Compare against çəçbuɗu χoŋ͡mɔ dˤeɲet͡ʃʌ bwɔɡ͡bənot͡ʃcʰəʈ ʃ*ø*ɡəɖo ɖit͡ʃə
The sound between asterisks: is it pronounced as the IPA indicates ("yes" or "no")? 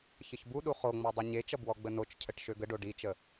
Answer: yes